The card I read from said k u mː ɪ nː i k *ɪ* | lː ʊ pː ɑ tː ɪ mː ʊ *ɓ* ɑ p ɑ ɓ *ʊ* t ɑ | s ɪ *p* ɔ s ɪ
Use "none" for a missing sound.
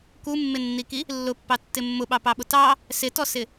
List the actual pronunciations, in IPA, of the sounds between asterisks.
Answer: i, ɓ, ʊ, t

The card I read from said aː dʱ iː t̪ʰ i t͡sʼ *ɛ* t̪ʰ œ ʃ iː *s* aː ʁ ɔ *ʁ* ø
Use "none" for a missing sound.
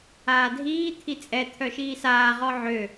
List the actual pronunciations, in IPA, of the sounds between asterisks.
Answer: ɛ, s, ʕ

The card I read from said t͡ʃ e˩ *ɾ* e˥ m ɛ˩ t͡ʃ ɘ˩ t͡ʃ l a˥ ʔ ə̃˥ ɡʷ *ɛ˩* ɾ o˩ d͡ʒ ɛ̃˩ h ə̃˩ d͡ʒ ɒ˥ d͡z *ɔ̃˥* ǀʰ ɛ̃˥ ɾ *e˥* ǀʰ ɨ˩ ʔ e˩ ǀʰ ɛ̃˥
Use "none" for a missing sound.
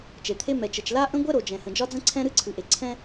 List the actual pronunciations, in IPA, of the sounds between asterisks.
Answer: t̪ʰ, ɛ˥, ə̃˥, ɨ˥

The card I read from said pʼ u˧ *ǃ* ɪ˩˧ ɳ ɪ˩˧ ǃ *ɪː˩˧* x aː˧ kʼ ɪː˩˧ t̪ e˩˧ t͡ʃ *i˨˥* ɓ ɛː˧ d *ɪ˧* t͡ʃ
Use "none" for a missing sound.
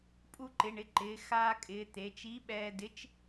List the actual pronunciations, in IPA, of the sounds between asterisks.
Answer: ǃ, ɪː˩˧, i˨˥, ɪ˨˥

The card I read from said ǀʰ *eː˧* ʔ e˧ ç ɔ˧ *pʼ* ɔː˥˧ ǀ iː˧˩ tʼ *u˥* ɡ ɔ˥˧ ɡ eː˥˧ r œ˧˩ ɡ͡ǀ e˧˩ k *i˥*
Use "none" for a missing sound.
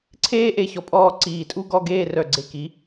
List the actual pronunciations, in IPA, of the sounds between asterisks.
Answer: eː˥, pʼ, u˥, i˩˧

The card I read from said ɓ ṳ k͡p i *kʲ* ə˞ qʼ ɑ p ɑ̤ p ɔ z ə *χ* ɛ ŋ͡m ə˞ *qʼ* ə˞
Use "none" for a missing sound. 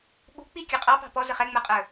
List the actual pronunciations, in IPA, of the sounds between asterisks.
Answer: kʲ, χ, qʼ

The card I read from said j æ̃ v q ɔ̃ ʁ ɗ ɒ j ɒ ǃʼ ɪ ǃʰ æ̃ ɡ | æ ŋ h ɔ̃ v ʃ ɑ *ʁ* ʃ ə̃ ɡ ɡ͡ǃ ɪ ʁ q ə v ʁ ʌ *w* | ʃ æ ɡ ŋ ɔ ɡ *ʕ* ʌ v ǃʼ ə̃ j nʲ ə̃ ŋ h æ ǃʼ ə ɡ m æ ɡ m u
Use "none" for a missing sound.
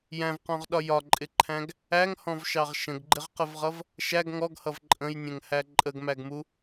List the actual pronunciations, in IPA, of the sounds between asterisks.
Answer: ʁ, v, h

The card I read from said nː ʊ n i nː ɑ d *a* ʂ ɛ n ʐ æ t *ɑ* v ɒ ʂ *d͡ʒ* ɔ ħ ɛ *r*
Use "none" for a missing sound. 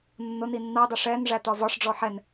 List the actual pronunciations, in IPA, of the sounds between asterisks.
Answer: ɑ, ɒ, ɖ͡ʐ, n

